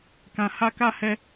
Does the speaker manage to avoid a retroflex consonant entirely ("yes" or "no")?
yes